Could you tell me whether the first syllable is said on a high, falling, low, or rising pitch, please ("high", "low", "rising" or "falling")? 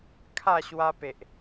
falling